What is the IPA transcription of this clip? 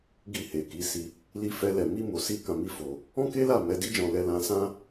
ɡ i˧ h e˨ k i˨˦ s i˧ | l i˦ f ɛ˦ l ɛ˧ m i˦ m o˧ s i˦ k ã˧ m i˦ f o˧ | ɔ̃˦ k e˦ l a˦˨ m ɛ˨˦ d i˦ d͡ʒ ɔ̃˧ l ɛ˧ l ã˧ s ã˦

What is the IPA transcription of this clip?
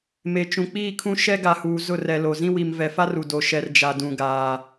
m e˨ t͡ʃ ũ˨ k͡p iː˦˨ kʰ ũ˦ ʃ ɛ˦ ɡ a˨ h uː˨ z ʊ˦˨ r ɛ˨ l o˨ z ĩ˦ w i˨ m v ɛ˨ f a˦ r u˨ d o˨ ʃ ɛ˨ r d͡ʒ a˨ d ũ˨ ɡ aː˨

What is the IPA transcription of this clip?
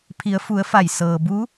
pʰ i˩˧ ə̯ f u˩˧ ə̯ f a˧˩ j s ɤː˩ b u˧˥

